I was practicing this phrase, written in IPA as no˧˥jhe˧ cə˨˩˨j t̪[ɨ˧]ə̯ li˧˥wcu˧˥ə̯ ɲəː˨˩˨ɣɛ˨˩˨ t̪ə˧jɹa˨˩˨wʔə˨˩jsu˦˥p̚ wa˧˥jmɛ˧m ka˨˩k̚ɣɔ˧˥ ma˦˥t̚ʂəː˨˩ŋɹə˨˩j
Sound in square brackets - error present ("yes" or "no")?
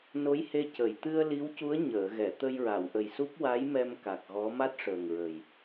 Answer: no